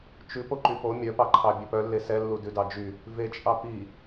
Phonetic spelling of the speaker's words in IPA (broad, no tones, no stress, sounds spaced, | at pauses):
t͡ʃ ʉ p o ǃ y p o mʲ œ p ɑ ǃʰ ɑ bʲ ø p œ lː e s ɛ lː u d ʉ d ɑ d͡ʒ y | v e t͡ʃʼ ɑ p i